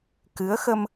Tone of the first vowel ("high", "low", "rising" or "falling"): rising